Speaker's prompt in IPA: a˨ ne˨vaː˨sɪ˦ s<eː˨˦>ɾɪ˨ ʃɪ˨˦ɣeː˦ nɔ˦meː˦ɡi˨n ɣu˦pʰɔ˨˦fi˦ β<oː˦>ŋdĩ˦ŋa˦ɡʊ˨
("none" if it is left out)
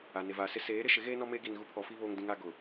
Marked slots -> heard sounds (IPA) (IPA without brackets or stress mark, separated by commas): eː˨˦, oː˦